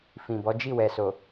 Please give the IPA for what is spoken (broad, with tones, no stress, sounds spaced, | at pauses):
f ĩ˨ b ɔ˨˦ d͡ʒ i˦˨ w ɛ˨ s o˨